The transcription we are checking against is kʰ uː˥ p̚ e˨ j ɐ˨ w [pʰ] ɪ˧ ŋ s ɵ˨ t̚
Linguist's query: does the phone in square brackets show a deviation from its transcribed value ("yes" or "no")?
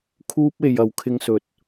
yes